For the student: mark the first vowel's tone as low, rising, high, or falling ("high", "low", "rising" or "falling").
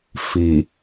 low